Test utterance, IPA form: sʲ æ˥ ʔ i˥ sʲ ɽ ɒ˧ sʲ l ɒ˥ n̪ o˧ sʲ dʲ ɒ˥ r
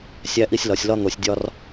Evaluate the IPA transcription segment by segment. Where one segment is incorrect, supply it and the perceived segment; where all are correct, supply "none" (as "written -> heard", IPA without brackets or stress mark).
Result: ɽ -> l